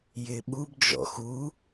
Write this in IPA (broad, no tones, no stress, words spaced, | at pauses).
jɪɓub d͡ʒɔ̰xu